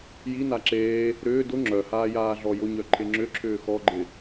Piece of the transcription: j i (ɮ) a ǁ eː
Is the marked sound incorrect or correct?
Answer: incorrect